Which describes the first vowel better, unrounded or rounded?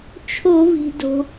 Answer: rounded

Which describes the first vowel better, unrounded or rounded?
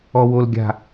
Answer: rounded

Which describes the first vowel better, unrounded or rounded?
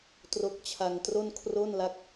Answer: rounded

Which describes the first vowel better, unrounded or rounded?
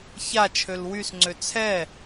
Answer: unrounded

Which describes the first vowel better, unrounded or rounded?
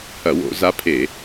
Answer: unrounded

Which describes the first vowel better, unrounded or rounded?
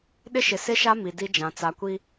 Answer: unrounded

